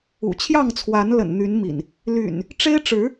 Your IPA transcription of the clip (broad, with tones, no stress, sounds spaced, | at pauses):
ṵ˨˩ t͡ɕʰ j ɑ˥˨ ŋ t͡sʰ w a˨˦ n l ə̰˨˩ n n̪ y˨˦ n m ḭ˨˩ n | l y̰˨˩ n | ʈ͡ʂ e˦ ɪ̯ ʈ͡ʂ ɻ̩˨˦